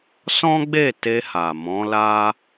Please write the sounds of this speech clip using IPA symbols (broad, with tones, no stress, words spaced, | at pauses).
sɔ̃˦ɡ͡be˦˨ te˧ha˨ mɔ̃˨˦la˦